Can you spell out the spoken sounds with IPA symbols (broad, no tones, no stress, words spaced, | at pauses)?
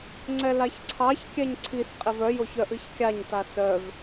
ŋ͡ǀɛlaçǀʰɑçkʲɛɲ ǀʰisqʼev œjoç œʔɨçkʲaɲta sœv